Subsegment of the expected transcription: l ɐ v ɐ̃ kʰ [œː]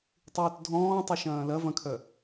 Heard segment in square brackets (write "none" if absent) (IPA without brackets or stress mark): œ